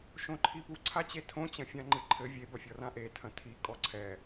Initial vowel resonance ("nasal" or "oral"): nasal